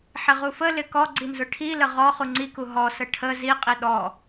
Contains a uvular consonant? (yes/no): yes